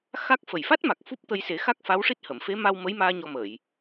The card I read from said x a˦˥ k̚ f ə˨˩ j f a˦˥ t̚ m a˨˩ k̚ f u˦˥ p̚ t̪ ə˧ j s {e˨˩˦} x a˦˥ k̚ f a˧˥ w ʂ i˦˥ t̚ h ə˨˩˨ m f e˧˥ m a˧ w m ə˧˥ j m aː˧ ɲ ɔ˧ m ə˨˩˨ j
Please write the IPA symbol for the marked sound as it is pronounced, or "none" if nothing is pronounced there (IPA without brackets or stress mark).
e˨˩˦